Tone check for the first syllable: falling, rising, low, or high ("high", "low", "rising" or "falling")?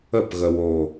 falling